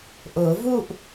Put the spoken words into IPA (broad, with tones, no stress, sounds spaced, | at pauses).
ʔ ʊː˨˩˦ v u˥˧ ʔ